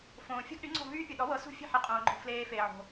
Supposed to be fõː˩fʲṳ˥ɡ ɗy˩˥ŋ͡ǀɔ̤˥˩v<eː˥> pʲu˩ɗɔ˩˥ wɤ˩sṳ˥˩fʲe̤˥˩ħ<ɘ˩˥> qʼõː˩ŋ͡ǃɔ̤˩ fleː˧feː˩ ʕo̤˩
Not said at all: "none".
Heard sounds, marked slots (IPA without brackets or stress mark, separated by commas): yː˥, e˩˥